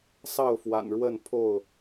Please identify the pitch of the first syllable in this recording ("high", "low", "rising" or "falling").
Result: falling